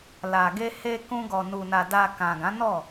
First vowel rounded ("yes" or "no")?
no